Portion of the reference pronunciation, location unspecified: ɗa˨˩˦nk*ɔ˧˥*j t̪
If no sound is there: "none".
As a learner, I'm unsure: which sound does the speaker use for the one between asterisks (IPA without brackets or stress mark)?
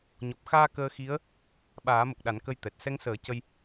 ə˧˥